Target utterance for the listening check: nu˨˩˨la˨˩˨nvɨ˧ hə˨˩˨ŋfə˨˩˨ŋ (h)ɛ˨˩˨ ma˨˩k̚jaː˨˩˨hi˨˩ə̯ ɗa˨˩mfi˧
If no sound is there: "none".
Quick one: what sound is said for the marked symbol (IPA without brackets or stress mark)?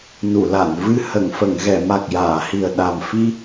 ɣ